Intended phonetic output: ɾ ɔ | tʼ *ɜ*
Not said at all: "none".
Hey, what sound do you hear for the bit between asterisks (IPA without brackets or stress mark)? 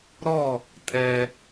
ɛ